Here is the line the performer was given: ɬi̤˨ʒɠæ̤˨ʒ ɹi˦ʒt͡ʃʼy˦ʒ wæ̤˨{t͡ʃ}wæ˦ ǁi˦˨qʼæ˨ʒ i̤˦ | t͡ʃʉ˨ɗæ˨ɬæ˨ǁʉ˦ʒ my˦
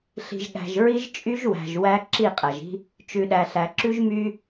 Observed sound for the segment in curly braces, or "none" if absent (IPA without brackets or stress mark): ʒ